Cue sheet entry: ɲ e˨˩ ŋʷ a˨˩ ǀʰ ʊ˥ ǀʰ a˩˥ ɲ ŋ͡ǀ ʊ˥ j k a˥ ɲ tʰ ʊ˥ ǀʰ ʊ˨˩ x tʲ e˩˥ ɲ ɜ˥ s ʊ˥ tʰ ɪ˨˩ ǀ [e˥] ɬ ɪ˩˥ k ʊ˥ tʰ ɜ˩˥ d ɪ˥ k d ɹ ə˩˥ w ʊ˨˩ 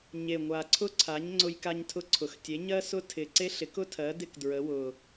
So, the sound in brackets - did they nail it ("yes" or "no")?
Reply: yes